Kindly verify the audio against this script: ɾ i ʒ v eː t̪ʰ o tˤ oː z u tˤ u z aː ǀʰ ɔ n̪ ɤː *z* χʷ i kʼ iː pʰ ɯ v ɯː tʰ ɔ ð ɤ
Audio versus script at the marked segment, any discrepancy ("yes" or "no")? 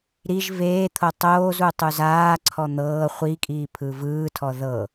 yes